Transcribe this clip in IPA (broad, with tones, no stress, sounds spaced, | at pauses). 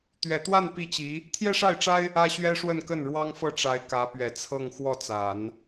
t̪ ɥ ɛ˨˩ t̪ w a˥˧ n p i˥˩ t͡ɕ i˧˥ | t̪ʰ j ɛ˥ ʂ a˥˩ ɪ̯ ʈ͡ʂ a˥ ɪ̯ | ä˥ ɕ ɥ ɛ˥ ʂ w ə˥˧ n k ə˥˩ n ɻ w ɑ˥ ŋ f ɤ˥˩ ʈ͡ʂ a˧˥ ɪ̯ k ä˧˥ p ɥ ɛ˨˩ t͡sʰ ɤ˥˧ ŋ x w ɔ˥˩ t͡s a˨˩˦ n